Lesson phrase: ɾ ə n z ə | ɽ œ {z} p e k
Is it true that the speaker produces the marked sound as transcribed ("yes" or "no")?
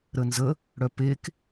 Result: no